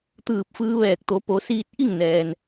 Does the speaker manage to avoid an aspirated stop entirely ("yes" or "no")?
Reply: yes